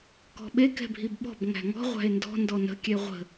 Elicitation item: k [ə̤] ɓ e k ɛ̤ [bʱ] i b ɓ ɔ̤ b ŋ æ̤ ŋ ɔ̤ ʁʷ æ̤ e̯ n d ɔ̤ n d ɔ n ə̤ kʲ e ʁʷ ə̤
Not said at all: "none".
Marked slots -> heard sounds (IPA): ɔ̤, bʱ

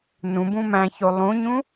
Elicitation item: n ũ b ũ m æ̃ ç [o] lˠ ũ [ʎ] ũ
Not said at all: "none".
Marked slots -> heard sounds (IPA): o, ɲ

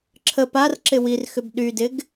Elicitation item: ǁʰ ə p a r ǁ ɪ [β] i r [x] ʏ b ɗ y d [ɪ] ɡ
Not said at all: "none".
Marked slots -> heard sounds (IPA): w, x, ɪ

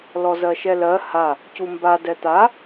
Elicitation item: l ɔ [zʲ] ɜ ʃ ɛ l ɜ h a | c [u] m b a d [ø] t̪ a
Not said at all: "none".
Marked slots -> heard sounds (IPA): z, u, ɛ

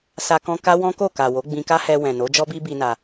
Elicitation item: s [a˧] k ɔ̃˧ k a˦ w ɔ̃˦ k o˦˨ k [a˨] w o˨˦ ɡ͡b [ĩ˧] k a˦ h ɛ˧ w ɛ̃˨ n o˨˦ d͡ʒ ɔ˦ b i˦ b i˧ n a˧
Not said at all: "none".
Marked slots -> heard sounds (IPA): a˧, a˨, ĩ˧

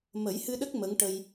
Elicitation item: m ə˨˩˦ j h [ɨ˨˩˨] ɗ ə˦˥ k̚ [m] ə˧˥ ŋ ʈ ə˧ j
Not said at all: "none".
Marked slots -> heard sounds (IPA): ɨ˧, m

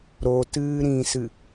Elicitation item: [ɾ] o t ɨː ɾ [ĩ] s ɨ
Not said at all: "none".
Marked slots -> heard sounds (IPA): ɾ, ĩ

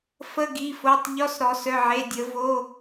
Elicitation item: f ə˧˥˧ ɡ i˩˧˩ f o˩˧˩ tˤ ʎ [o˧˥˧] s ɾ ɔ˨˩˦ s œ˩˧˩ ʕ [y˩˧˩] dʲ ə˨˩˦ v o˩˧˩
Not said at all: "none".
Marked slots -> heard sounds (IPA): ɔ˧˥˧, e˩˧˩

